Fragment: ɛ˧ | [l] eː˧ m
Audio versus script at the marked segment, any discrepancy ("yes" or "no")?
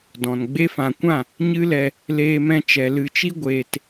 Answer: no